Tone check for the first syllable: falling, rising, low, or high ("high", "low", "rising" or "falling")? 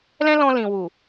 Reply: high